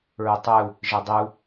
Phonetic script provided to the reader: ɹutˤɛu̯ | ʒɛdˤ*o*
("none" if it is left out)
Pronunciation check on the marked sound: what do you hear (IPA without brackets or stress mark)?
u